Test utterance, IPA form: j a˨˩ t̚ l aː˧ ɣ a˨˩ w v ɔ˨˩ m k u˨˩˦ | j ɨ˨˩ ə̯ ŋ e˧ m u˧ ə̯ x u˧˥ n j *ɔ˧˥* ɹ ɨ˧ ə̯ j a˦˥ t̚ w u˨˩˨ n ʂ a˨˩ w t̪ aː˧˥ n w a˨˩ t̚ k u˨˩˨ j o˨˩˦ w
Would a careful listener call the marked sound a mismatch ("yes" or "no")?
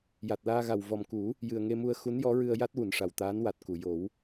no